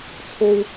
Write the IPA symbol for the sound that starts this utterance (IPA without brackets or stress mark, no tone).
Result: t͡sʰ